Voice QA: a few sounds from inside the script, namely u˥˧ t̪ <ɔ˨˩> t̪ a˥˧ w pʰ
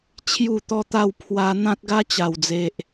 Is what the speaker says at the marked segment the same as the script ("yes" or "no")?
no